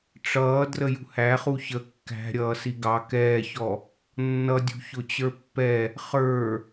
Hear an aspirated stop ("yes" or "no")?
no